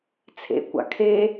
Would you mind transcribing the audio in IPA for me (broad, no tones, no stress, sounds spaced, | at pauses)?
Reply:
t͡sʰ ḛ kʷ a̰ kʰ e